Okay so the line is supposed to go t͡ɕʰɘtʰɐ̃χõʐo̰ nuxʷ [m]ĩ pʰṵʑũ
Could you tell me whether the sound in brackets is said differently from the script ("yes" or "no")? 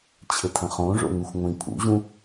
yes